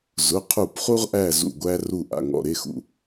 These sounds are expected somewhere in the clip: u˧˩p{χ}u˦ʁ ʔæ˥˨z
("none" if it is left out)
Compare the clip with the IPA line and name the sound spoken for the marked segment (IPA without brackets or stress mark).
χ